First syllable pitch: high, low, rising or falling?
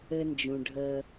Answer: high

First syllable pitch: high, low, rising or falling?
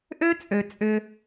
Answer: high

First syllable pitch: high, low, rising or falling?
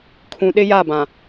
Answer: low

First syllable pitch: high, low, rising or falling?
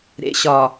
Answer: low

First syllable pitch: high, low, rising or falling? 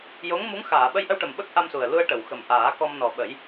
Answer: rising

